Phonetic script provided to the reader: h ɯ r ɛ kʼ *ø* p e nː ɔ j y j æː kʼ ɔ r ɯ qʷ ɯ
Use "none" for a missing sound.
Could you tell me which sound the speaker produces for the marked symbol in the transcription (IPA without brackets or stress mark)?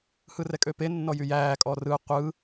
ø